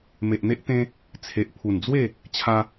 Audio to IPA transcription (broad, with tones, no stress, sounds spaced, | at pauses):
m e˨ ʔ n̪ e˦ ʔ t̪ ẽ˦ | t͡sʰ e˨ ʔ pʰ u˨˩ n d͡z w e˥˧ | t͡ɕʰ a˦